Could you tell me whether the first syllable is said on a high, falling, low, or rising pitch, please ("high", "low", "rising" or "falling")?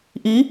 rising